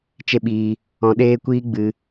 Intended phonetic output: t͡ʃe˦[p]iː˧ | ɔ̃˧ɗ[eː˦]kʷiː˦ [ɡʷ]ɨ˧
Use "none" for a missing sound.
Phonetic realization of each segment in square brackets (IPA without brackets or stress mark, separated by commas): ɓ, eː˦, ɡ͡b